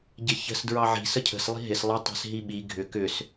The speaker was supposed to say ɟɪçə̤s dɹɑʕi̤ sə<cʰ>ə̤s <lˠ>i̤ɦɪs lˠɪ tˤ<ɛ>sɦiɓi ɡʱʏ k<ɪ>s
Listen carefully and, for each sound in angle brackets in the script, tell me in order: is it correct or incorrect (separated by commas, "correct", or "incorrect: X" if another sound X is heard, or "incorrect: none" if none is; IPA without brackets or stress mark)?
correct, correct, incorrect: ɛ̤, incorrect: ʏ